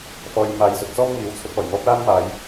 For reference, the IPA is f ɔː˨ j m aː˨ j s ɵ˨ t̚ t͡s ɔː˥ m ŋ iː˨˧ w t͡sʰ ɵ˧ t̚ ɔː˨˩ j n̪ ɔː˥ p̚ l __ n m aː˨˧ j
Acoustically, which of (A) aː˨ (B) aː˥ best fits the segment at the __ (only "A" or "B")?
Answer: B